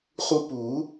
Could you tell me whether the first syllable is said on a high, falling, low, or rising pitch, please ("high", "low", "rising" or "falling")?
high